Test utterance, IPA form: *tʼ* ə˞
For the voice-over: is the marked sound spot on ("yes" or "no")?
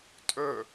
yes